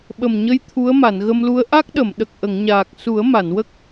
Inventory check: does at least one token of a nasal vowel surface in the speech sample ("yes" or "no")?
no